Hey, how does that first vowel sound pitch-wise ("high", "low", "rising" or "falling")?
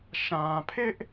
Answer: low